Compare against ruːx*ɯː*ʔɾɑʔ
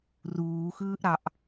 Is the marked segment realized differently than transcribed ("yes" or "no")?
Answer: no